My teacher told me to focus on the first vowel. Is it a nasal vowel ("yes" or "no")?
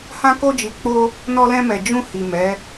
yes